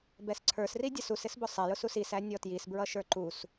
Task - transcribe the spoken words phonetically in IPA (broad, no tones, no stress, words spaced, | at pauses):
bɛsǀʰə˞sri dʲʌsusɪsbʊ sˤɛjʊsus isæ nʲɔtjis bɹʌʃə˞ǃus